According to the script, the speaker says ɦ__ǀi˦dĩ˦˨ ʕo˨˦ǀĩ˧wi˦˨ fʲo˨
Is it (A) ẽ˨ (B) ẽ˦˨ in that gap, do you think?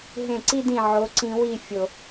B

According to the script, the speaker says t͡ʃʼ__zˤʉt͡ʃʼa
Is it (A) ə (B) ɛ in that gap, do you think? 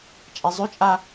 B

